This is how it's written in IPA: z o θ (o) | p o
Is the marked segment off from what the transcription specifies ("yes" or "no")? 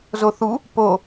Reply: yes